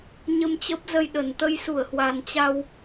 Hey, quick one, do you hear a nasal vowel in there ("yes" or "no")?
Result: no